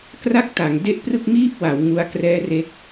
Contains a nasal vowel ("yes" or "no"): no